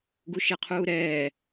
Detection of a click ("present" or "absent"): absent